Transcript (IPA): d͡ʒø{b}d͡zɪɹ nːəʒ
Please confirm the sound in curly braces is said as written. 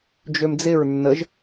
no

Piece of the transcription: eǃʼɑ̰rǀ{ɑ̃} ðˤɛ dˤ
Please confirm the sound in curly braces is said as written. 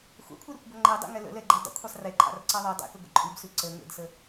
no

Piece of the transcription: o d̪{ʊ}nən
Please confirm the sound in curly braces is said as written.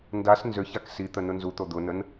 yes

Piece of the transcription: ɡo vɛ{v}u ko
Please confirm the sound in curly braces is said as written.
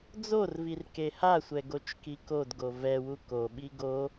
no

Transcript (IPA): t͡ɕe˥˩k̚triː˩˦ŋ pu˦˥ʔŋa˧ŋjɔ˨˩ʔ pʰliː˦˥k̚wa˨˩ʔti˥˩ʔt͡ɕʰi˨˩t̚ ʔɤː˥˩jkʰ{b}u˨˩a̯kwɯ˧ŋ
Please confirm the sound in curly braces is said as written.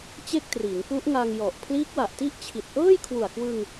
no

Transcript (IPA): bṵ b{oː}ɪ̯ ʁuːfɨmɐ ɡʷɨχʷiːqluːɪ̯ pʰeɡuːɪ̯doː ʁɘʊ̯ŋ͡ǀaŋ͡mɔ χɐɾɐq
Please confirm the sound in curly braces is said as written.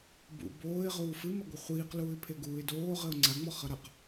yes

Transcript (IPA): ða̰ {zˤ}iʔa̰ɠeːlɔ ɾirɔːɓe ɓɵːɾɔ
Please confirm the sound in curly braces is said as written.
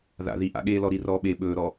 no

